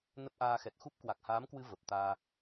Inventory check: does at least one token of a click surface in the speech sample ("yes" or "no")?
no